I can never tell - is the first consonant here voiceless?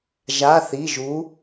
no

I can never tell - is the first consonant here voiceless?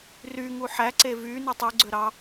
no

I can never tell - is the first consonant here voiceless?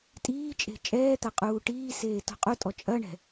yes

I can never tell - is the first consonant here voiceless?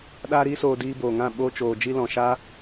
no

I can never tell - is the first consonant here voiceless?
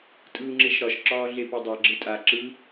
yes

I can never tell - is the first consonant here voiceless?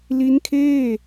no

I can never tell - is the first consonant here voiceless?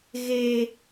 no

